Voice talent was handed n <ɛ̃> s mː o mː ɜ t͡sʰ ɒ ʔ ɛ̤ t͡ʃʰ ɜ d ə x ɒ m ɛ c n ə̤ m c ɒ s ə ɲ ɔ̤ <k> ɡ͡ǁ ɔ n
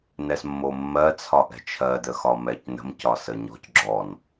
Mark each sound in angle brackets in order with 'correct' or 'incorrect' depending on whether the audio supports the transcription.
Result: incorrect, incorrect

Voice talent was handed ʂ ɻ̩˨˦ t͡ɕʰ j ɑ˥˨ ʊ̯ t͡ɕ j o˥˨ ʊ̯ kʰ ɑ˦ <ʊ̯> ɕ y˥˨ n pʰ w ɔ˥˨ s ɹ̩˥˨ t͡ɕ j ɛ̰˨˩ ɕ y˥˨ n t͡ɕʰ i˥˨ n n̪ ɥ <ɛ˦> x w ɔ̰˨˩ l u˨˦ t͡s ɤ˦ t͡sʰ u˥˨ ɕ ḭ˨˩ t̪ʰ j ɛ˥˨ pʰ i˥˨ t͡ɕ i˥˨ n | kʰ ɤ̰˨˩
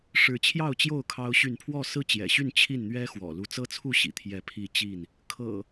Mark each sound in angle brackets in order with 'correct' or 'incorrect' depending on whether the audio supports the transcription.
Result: correct, correct

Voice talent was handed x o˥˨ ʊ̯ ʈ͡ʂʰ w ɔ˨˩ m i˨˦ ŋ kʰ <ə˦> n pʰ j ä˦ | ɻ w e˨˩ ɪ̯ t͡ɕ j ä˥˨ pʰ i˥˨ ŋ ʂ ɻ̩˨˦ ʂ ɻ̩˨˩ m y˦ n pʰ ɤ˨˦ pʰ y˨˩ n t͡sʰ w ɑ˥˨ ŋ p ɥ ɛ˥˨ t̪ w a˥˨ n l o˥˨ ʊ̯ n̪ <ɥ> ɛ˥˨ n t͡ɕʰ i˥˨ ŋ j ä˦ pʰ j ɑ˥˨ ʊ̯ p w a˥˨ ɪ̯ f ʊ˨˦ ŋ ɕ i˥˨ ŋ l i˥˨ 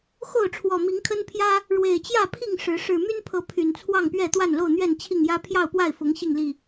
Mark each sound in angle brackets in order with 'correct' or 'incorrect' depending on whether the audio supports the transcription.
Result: correct, correct

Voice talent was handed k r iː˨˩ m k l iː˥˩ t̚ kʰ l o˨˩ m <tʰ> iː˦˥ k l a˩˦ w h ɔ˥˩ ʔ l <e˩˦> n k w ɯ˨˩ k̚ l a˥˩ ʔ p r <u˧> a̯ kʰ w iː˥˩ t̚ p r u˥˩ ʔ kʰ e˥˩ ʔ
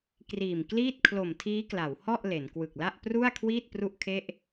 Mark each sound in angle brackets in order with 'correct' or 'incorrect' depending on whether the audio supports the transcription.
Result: correct, correct, incorrect

